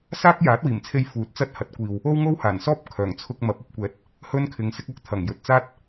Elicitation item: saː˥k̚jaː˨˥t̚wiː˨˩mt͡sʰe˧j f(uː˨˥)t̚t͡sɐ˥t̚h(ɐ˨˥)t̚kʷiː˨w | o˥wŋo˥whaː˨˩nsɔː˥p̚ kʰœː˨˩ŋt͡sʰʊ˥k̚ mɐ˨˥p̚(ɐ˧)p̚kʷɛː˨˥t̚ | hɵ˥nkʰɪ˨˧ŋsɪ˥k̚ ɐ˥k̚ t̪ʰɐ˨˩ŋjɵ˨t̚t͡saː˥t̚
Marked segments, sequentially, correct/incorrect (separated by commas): correct, correct, correct